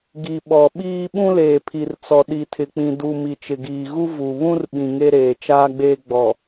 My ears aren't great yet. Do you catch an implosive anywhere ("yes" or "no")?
yes